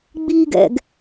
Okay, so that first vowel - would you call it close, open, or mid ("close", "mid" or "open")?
close